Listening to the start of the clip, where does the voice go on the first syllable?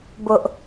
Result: high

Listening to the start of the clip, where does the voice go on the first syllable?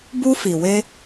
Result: high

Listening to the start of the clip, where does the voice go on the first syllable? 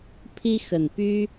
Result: high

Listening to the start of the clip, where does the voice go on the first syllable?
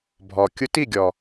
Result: low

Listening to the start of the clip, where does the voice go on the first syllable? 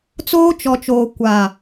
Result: high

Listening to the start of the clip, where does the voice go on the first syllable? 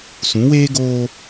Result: rising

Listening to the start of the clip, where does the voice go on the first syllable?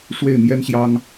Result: falling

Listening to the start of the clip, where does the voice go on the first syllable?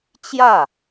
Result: falling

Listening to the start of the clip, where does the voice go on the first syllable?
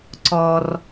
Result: low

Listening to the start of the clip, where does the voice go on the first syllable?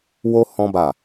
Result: high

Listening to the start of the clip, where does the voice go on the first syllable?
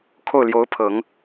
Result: falling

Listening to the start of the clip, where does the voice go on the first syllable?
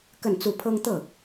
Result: falling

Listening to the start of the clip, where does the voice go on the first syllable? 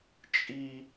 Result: high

